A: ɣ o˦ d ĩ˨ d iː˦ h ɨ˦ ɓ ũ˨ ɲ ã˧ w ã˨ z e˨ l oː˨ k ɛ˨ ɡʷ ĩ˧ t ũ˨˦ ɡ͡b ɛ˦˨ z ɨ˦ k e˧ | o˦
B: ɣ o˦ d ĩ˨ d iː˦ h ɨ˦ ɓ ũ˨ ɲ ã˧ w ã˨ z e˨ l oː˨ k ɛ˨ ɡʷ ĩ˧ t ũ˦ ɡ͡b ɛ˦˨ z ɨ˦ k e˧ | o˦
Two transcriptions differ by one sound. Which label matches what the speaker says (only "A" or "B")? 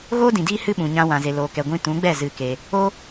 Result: A